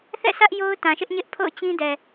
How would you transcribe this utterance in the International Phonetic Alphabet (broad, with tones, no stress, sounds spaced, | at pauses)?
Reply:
θ ɛ̰˦˨ sʰ ä˦ ʔ j o˦ ʊ̯ t ã˨ ʃ ɪ˦ ʔ ɲ ɪ˦ ʔ pʰ o̰˦˨ ʊ̯ t͡ɕ ĩ˦ d ɛ˨